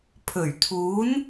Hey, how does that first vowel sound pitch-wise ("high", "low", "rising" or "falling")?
low